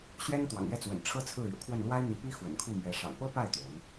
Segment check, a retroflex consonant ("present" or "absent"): present